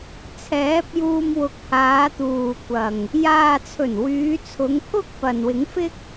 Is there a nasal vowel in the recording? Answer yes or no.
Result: no